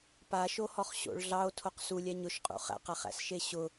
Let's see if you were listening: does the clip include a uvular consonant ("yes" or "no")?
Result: yes